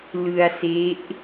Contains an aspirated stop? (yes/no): no